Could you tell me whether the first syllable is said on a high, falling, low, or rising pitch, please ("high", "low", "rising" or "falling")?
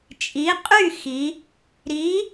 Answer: rising